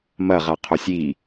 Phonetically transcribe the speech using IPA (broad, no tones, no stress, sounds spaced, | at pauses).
m ɐ ʁ a qʰ o sʲ i